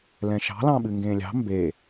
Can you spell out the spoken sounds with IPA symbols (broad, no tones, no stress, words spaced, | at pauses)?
lɛ̃ʃɑ̤lɑ̃ɓɨ ŋɡẽːlʲɑ̤ mbe